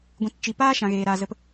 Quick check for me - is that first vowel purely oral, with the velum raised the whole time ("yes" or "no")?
no